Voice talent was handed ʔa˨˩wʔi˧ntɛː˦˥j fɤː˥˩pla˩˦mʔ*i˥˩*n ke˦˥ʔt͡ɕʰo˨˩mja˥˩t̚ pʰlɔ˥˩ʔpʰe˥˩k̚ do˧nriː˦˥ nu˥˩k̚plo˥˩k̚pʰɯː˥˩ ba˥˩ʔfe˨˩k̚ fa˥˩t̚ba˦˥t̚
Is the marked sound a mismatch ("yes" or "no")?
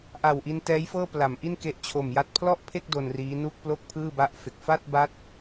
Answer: no